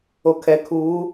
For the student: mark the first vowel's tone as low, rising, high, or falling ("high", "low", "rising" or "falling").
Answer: low